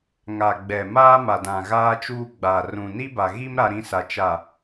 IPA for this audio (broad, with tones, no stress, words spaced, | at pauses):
ŋa˨ ɡ͡bɛ˨ maː˦ ma˨dã˨ɣaː˦t͡ʃuː˦ ɡ͡ba˨ rũ˨ni˦ba˨ɣi˦m ɾa˦ɾĩ˦sa˨ t͡ʃa˨